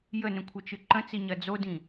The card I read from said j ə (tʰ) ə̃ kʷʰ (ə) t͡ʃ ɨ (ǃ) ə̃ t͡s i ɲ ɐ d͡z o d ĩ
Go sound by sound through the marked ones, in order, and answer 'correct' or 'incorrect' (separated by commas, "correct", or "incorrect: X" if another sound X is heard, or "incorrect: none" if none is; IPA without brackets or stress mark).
incorrect: n, incorrect: ɐ, correct